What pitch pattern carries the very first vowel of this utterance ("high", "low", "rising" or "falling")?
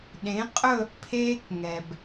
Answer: rising